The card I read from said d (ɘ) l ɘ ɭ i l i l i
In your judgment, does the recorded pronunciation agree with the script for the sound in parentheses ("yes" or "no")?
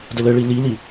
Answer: yes